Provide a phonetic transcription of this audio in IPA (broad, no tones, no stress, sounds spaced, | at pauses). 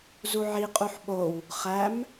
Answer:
z u ʕ i qʼ u ħ ɓ o w | χ æ m